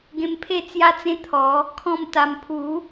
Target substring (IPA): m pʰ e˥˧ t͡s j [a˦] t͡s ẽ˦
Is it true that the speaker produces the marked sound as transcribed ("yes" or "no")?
yes